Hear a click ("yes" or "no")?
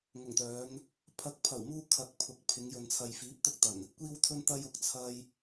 no